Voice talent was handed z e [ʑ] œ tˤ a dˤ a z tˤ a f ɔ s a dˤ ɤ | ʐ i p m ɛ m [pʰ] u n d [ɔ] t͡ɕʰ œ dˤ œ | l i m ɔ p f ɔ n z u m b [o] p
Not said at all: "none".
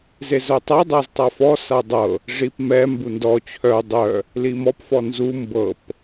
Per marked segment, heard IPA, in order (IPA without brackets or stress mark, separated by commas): z, b, ɔ, ɤ